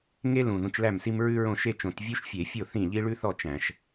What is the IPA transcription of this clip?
ŋ e˥ l ũ˨˩ ð ũ˨˦ t͡ʃ l æ˥˩ m s i˥ m ɹ ʉ˥ ɹ õ˥˩ ʃ e˥˧ t͡ʃ õ˧˩˧ t vʲ u˥ ʃ fʲ e˧˩˧ fʲ o˥˩ θ ĩ˥˩ ʎ i˥ ɭ ʉ˥ θ ɔ˥˩ t͡ʃ æ̃˧˩˧ ʃ

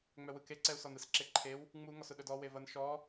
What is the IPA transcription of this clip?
ŋ͡m œ w ɯ k e ǀ ɛ u̯ s ɔ n ɯ s ǁ e ǃʰ e w | ŋ͡m u ŋ ɔ s ʊ ɗ œ d ɔ w e v ɐ n ʃ ɔ

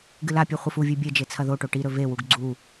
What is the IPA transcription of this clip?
ɡ ɨ l a pʲ ʉ χʷ ɨ f u vʲ ʉ bʲ e d͡ʒ e t͡sʰ ɐ ð o ʈ o ʈ i ɾ ɵ v e w u ɡ ɡ͡ǀ u

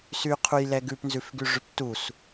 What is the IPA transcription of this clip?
s y qʰ u j l ɛ ɡ ʉ p n z ʉ f ɡ y ʐ y p t u s

